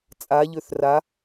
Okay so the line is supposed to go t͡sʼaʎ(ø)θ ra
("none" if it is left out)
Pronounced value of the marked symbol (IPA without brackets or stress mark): ø